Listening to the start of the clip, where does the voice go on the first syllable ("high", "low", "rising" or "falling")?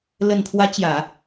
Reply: low